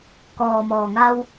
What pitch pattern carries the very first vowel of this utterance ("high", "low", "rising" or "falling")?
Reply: low